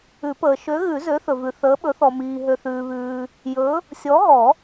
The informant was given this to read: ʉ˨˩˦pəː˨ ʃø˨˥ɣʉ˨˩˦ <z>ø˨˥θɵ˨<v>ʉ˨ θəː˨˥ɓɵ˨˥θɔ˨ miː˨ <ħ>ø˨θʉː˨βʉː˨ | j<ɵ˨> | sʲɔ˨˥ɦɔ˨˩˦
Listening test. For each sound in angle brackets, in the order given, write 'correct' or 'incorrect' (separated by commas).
correct, correct, incorrect, incorrect